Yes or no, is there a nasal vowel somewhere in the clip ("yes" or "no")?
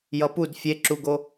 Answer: no